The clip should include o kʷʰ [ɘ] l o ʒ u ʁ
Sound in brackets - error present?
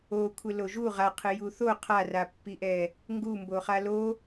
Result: no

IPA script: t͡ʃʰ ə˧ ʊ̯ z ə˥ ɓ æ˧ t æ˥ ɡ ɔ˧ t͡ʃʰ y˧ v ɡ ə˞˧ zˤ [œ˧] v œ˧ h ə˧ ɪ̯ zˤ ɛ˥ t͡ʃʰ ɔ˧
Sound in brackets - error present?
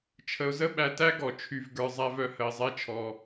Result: yes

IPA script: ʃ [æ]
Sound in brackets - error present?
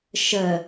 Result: yes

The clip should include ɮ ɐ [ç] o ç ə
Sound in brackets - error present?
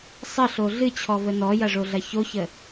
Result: no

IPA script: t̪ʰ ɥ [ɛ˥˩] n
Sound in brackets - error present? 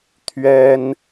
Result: yes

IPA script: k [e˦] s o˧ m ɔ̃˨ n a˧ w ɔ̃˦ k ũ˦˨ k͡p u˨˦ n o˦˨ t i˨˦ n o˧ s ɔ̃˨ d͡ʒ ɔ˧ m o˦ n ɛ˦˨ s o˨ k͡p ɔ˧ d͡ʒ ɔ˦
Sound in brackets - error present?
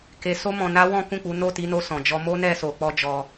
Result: yes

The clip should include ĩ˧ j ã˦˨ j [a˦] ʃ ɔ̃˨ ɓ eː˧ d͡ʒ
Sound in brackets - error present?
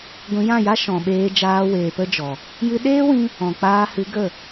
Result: no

